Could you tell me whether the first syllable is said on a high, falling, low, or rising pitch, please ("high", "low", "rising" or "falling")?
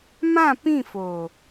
falling